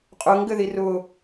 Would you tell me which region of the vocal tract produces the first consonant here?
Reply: uvula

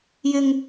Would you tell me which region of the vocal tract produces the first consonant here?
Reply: palate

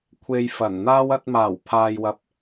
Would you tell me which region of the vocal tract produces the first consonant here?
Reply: velum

